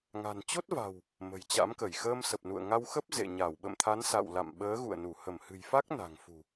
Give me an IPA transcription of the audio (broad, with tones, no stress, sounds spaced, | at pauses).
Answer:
ŋ a̤˨˩ n t͡ɕ o˦˥ t̚ v a̤˨˩ w | m ə̤˨˩ j t͡ɕ a̰˧˥ m k ə˧˩ j x əː˧ m s ə˨˩ p̚ n ṵ˧˨ ə̯ ŋ a˧ w x ə˦˥ p̚ z ḛ˧˨ ɲ a˧˩ w ɓ ə̰˧˨ m t̪ʰ a˨˦ n s a̰˧˨ w l a̰˧˨ m ɓ əː˨˦ ɣ ṵ˧˨ ə̯ n u˧˩ h ə˧˩ m h ɨ̤˨˩ j f a˦˥ k̚ n a̤˨˩ ŋ f ṳ˨˩